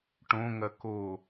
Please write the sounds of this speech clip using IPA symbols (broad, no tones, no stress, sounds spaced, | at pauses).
ʈ õ ŋ ɐ k o